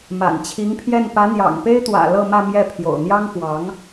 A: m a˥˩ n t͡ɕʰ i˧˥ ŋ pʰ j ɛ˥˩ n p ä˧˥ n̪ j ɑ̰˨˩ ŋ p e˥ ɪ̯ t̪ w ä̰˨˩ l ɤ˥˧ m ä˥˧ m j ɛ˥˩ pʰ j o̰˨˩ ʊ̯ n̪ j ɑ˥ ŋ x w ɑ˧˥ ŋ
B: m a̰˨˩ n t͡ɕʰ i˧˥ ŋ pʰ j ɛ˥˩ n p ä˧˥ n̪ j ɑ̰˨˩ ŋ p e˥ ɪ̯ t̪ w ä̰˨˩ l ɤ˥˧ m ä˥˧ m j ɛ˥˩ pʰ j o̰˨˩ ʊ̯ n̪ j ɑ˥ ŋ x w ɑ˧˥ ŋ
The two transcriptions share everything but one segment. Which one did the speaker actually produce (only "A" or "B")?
B